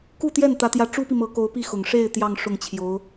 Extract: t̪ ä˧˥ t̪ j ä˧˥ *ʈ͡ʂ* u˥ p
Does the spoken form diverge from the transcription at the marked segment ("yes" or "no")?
no